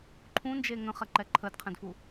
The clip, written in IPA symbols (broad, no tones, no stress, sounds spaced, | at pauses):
ǃʰ ũ n d͡ʒ e ŋ ə̃ χ ɛ ǃ ɛ ǃʰ ə d qʰ ɛ̃ d f u